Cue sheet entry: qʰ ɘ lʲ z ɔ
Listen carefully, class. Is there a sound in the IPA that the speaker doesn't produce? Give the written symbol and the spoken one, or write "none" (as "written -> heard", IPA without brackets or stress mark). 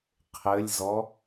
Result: none